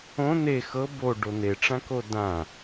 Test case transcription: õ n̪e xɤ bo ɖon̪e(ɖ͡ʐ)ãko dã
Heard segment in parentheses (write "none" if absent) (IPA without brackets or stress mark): ʈ͡ʂ